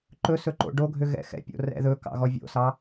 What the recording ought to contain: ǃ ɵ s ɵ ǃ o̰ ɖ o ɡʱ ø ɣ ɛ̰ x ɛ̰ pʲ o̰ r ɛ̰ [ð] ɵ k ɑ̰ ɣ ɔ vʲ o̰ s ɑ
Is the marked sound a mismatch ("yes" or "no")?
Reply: no